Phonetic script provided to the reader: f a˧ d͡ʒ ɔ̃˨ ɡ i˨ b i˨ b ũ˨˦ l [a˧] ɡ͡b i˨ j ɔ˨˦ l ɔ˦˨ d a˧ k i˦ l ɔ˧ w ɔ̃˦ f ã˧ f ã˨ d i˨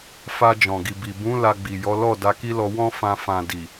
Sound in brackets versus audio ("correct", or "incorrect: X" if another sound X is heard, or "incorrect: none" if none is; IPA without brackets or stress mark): correct